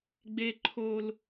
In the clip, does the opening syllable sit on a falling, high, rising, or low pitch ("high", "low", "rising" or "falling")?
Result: high